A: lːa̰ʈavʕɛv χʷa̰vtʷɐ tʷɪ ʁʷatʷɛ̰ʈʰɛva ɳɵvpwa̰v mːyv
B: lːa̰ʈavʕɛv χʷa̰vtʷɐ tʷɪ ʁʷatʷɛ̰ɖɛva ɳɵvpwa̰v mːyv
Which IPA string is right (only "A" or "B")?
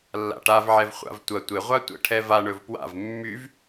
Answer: A